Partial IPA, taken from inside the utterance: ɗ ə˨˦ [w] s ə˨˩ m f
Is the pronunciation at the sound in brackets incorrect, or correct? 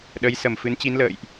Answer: incorrect: j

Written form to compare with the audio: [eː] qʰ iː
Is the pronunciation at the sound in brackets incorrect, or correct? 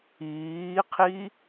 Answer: incorrect: iː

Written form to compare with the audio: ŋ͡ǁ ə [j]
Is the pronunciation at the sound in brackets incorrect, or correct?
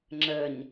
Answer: incorrect: ɲ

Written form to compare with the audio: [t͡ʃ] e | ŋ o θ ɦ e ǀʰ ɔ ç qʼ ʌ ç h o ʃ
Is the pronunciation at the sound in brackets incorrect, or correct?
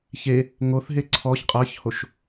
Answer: incorrect: ç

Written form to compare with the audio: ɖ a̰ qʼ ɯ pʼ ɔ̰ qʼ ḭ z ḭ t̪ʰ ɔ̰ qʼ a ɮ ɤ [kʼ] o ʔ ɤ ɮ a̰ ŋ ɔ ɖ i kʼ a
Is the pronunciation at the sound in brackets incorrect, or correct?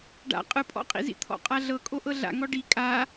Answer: correct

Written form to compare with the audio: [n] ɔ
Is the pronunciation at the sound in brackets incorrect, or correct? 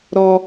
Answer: incorrect: ɾ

